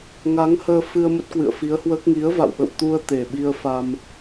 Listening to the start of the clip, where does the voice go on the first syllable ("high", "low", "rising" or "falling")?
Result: rising